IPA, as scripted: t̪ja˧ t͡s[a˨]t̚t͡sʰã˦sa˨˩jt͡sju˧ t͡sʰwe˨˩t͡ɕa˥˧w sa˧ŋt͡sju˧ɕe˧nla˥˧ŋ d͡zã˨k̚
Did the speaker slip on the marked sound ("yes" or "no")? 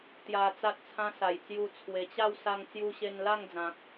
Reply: yes